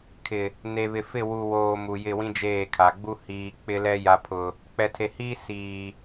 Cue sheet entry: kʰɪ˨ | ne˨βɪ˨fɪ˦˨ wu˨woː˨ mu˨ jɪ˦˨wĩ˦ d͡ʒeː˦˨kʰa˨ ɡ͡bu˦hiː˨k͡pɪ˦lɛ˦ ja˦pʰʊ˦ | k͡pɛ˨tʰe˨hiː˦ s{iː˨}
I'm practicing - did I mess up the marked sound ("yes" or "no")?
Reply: no